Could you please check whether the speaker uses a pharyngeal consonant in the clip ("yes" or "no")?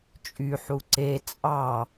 yes